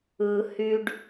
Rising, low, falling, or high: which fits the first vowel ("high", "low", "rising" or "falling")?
low